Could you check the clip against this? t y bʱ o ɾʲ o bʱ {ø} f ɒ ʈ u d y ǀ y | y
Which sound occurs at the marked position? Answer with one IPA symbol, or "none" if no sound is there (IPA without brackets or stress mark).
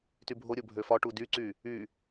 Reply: ø